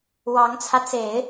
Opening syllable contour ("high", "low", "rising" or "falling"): rising